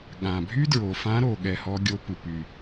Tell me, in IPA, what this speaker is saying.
ɠ ã˨˩ bʱ y˥ d ɹ o˨˩ f ã˧˥ ɾ o˨˩ ɠ ɛ˧ h ɔ˧˥ ɡʲ o˧˥ p ɨ˨˩ p y˨˩

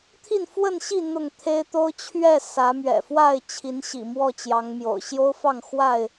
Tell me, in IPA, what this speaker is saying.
t̪ʰ i˥˨ n f w ə˥˨ n ɕ i˥˨ n̪ ʊ˥˨ ŋ t̪ʰ e˦ ɪ̯ t̪ o˦ ʊ̯ t͡ɕʰ ɥ ɛ˥˨ s ä˨˦ m ɥ ɛ̰˨˩ f w a˥˨ ɪ̯ t͡ɕʰ i˨˦ n ɕ ḭ˨˩ m w ɔ˥˨ t͡ɕ j ɑ˨˦ ŋ m j o̰˨˩ ʊ̯ ɕ j o˦ ʊ̯ f ɑ˥˨ ŋ x w a˥˨ ɪ̯

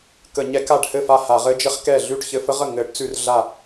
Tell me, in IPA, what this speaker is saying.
k ə˧˩˧ ɲ ɛ˧˥ k a˥˩ ɖ h ɘ˥˩ f a˥˩ h a˧˩˧ ʁ ɘ˧˥ d͡ʒ ɘ˧˥ χ k ɛ˥˩ ɮ ʉ˥˩ ʈ ç ɘ˧˥ f ə˧˥ ʁ ə˥˩ ŋ ɘ˧˩˧ ʈ t͡s ʉ˥˩ r ɮ a˥˩

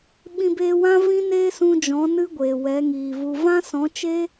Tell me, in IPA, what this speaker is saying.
ɓ ĩ˧ b eː˧ w ã˦ v ĩ˦ n eː˦ s ũ˧ d͡ʒ ɔ̃˨˦ n ɨ˦ ɡʷ eː˨ w ɛ˨˦ ŋ iː˨ v u˧ v ã˦ s ɔ̃˨˦ t͡ʃ e˦

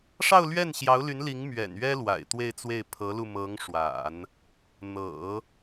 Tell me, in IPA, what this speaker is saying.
ʂ ɑ˥˧ ʊ̯ l ɥ ɛ˥˩ n ɕ j ɑ˧˥ ʊ̯ l y˧˥ n l i˧˥ ŋ m ɥ ɛ̰˨˩ n ɥ ɛ˥ l w a̰˨˩ ɪ̯ t̪ w e˥˧ ɪ̯ t͡s w e˥˩ ɪ̯ pʰ ɤ˧˥ l u˧ m ɤ˧˥ ŋ ʂ w a̰˨˩˦ n | n̪ ɤ̰˨˩˦

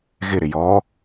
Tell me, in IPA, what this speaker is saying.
ɣ ɪ ɾ ɪ j ɔ

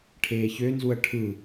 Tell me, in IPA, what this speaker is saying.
ʈʰ eː ç ø n z u ɐ̯ ʈʰ ɯ

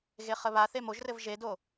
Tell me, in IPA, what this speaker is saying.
ɣ e χ ə β a θ e m o ʒ r ɘ v ʒ e d o

